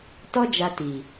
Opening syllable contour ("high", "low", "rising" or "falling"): high